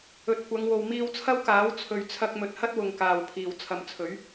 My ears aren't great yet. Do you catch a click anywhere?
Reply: no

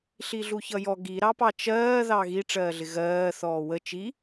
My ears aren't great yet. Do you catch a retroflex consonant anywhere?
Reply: yes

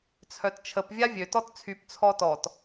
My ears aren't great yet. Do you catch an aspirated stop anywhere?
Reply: yes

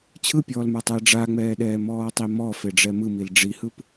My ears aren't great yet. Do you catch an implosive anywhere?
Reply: yes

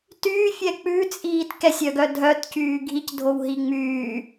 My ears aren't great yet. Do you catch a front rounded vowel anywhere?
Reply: yes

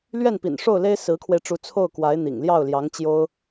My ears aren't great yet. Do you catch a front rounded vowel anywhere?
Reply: no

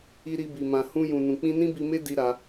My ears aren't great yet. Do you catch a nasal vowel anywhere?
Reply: yes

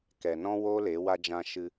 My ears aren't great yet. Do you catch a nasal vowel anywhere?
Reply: yes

